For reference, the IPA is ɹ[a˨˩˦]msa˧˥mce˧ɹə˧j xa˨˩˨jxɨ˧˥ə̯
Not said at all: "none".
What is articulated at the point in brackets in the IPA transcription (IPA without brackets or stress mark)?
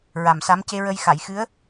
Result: a˨˩